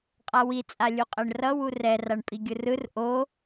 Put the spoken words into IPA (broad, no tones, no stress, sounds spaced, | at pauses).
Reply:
qʼ a w i t͡sʼ a lʲ u qʼ ɛ ɳ r ʌ w u r ɛ r a ɳ pʼ i ɡʲ ɯ r ɯ r ʔ o